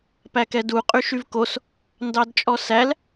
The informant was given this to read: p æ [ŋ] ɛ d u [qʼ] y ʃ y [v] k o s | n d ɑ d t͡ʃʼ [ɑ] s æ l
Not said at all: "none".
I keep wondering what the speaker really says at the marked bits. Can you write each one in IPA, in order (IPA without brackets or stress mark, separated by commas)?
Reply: k, qʼ, v, ɔ